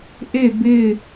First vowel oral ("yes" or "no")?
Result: yes